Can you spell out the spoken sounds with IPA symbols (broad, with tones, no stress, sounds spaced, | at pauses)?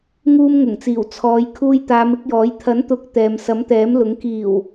ŋ uː˧ m ŋ ʊ˨˩ ŋ t͡s iː˨˩ w t͡sʰ ɔː˨˧ j kʰ uː˧ j t̪ aː˨˧ m ɪ˨˥ k̚ j ɔː˨˥ j t̪ʰ ɐ˨˥ n t̪ ʊ˨˥ k̚ t̪ ɛː˨ m s ɐ˨˥ m t̪ ɛː˨˥ m l ʊ˨˥ ŋ k iː˨˩ w